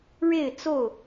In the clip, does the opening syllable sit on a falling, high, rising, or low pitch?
falling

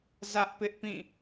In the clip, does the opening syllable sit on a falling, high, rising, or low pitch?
high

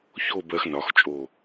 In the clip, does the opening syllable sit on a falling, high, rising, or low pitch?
falling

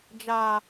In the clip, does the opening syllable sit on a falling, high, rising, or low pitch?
low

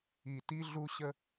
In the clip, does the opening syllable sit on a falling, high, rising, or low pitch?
low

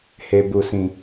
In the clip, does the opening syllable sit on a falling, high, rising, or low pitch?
low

